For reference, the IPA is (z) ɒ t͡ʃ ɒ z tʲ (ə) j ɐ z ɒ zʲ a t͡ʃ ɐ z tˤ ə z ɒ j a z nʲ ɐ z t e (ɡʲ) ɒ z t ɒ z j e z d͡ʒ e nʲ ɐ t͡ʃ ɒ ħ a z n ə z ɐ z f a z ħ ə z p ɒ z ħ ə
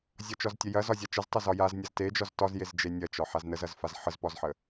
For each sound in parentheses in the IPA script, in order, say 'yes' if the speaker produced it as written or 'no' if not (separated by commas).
no, yes, no